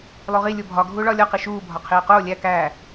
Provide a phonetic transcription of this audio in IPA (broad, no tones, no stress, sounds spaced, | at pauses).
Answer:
lˠ u ʁ i lʲ o bʱ ɒ ɡʱ uː ɭ ɒː lʲ ɒ q i ʃ uː bʱ ɒ qʰ iː q oː lʲ æ k æː